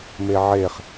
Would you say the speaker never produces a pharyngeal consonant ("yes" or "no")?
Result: no